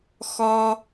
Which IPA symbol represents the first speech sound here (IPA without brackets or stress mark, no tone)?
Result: x